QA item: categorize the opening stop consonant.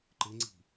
click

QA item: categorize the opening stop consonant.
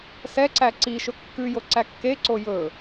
click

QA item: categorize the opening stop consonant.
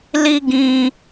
plain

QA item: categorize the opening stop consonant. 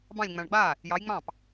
plain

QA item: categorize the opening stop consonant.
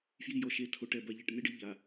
aspirated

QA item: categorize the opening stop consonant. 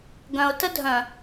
plain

